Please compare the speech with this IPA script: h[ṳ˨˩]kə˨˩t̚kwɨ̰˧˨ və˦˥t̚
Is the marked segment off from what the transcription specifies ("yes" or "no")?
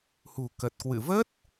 no